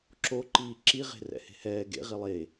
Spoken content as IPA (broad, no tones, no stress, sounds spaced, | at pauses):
ǁ o ǃ iː ǁ i ʁ e̤ r ɛ̰ h e̤ h ɛː ɡ ḛ ʁ i lˠ e